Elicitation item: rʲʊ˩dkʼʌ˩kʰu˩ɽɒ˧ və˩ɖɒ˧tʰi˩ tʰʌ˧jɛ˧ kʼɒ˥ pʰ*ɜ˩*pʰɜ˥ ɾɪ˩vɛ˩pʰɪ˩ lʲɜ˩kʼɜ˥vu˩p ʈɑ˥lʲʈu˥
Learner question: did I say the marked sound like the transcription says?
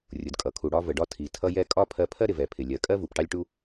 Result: no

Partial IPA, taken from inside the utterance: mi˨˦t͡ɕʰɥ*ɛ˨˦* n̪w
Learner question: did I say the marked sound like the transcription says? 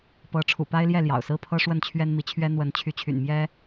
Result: no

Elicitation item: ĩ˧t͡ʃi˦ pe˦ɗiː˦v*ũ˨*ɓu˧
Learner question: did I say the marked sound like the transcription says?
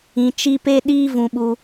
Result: no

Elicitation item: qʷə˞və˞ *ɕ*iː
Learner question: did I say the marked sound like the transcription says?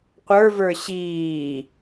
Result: yes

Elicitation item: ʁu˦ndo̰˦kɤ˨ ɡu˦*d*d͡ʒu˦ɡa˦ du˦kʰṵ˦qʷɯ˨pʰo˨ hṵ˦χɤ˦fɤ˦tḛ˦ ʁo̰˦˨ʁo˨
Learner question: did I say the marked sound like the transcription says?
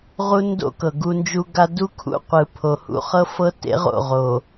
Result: no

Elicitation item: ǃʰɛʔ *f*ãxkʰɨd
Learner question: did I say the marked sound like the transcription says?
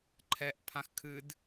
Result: no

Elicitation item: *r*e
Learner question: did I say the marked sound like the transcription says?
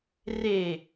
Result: yes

